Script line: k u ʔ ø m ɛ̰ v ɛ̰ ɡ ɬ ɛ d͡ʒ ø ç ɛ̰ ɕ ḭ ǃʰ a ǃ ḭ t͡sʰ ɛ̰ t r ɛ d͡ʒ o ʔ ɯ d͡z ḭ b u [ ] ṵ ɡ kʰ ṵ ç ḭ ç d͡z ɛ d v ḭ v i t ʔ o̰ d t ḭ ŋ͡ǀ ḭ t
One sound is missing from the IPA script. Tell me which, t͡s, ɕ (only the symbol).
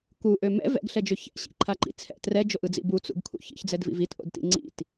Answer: t͡s